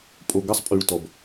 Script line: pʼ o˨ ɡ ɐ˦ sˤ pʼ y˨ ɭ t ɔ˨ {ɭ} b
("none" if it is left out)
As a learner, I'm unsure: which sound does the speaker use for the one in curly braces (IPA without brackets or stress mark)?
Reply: none